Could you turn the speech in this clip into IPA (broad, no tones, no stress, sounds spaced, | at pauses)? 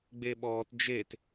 ɡ͡b e ɓ ɔː t d͡ʒ e t